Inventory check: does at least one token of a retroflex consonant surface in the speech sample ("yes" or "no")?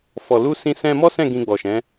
no